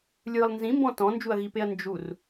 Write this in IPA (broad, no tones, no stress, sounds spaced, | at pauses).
lʲ ɯ lˠ n z ĩ m b ɔ̃ t ɔ̃ n d͡ʒ u ɐ̯ ɣ i p e ɐ̯ n d͡ʒ u r